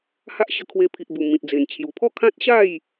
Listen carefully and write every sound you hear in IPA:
ha˦ʔ ɕə˧kʰwe˧pʰi˨ʔbu˨˩ mĩ˨t̚d͡ze˨˩n t͡ɕʰju˨˩pʰɔ˥˧kʰã˦t̚ɕa˥˧j

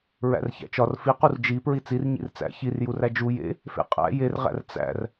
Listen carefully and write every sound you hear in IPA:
ɹæ̰rçæ̰t͡ʃɒr fiqur d͡ʒi pɹit͡sir ɲḭrt͡sæ̰ çirjuræ d͡ʒu jḛ | fḛqʼæ̰ jerʁæ̰r t͡sæ̰r

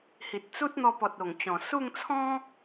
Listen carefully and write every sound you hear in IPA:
hi˨t̚t͡su˦t̚n̪ɔ˧pɔ˨t̚ o˨˩ŋt͡ɕɔ̃˨˩ su˥˧ŋt͡sʰɔ̃˦

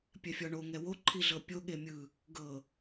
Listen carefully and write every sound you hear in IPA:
pʲɛfʲɔɳo ŋɛwo ǃʰiɮɤpʲo ɠemʲɯ | ɡɤ

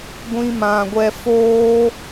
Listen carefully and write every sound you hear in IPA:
ɡʷĩ˧mã˨ɡʷɛ˧foː˦

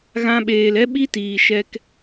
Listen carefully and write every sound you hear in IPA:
ɣã˧ɓeː˨lɛ˦ ɓi˦tiː˨ ʃɛ˧k

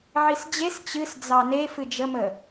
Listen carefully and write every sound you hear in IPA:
ʕisd͡ʑes t͡ɕɨs d͡zɑne fɨd͡ʒəmə

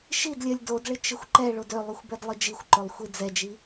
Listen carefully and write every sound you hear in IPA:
ʃidlʲɜlʲ dodɭɪ t͡ʃɪxʷǃɛɭod ølˠuxʷ bɛdlˠɯd͡ʒixʷǃolˠ xʷid͡zɛd͡ʒi

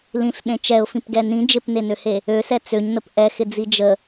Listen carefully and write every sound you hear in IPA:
lĩɬɗẽ t͡ʃɛʊ̯fĩpɡɛ nĩ d͡ʒɪpnenøhe | øsɛ t͡søɲnəp ʔɛxɪd͡zi d͡ʒə

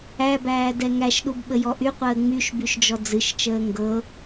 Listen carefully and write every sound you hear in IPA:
æbæː dɛŋæʃɗub ɓəjɔʔyqʷəː ŋ͡myʃ byʃd͡ʒɔd͡zɨʃt͡ʃəː ŋɡɤ

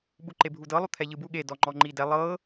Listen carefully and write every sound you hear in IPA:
ɓuǃebʱudɤ lˠut̪ʰɛʎɯbu ɠe dɔŋ͡ǃɔŋ͡ǃidɛ lˠɤ

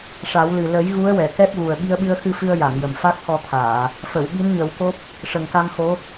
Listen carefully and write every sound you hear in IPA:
ʂa˨˩˦wlɨ˨˩ lə˨˩˦j ɣu˧˥ə̯wɛ˨˩˨ kɛ˦˥p̚ɣu˨˩ə̯ ɓi˧ə̯ɓɨ˧ə̯xɨ˧fɨ˧ə̯ ja˨˩˨ŋjə˨˩m fa˦˥k̚xɔ˧t̪ʰaː˨˩˨ | fə˨˩˨w ɓi˧˥nɲə˨˩˦wko˦˥p̚ | ʂə˨˩ŋka˧mxo˧˥

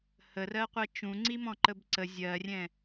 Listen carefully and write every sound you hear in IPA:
hərɜqʷɜ t͡ʃũŋ͡ǀimɔ̃ ǃəbǀə zʲɜrʲɛ̃

